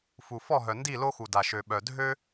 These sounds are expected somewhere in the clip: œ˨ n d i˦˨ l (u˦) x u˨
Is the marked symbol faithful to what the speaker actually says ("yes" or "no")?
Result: no